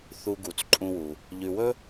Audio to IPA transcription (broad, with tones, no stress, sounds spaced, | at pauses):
θ u˨ ɡ u˩ t͡s ǃʼ ũ˨ w u˩ | ʎ ʉ˨ w ɵ˥